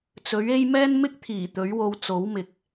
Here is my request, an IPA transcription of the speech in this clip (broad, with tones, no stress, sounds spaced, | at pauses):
t͡s ɵ˨˥ ɥ e˥ j m ɛː˥ n m ɪ˥ k̚ t̪ʰ iː˨˩ t̪ ɵ˨˥ ɥ w o˧ w t͡s o˨˥ w m ɪ˨ k̚